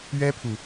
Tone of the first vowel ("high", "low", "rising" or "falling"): high